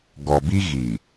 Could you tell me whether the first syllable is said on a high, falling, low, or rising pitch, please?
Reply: low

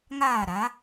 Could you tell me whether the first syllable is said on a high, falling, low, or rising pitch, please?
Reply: falling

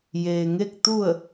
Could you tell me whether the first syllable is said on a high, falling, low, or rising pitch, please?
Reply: low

